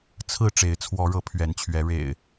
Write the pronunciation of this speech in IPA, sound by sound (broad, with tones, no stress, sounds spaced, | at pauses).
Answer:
t͡sʰ ɹ̩˥˨ ʈ͡ʂ e˨˦ ɪ̯ t͡sʰ w ɔ˨˦ ɻ ɤ˨˦ pʰ ɥ ɛ˨˦ n t͡ɕʰ ɥ ɛ˨˦ ɻ ḛ˨˩ ɪ̯